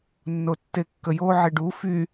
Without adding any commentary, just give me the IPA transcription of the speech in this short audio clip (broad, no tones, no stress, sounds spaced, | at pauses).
nː o tː e kː ə j o ʕ e ɖ u f y